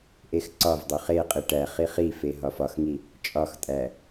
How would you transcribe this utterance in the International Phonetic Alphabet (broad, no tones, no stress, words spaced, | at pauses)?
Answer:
ʔexǀɒvdˤo χeqʼi ʈæχi χife ɦɒfɒxŋi | t͡ʃʼɒxtʼæ